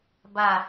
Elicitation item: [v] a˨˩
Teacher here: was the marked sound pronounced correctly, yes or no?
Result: no